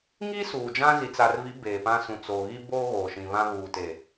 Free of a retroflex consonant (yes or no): yes